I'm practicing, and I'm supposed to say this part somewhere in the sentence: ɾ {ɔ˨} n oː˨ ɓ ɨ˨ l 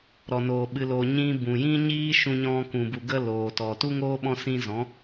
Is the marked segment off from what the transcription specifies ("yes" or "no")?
no